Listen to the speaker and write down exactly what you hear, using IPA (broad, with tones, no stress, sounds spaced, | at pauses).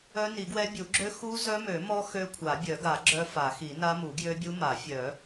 œ˦˥ n i˨˩˦ ɡ w ɛ˦˥ bʲ u˨˩˦ ɡ͡ǁ ø˦˥ x u˦˥ z œ˦˥ m ø˨˩˦ m ɔ˦˥ x ø˦˥ kʷʰ a˨˩˦ bʲ œ˨˩˦ ɡ a˨˩˦ ɡ͡ǁ œ˦˥ f a˨˩˦ x i˨˩˦ n a˦˥ m u˨˩˦ ɡ j ø˦˥ bʲ u˦˥ m a˨˩˦ fʲ œ˨˩˦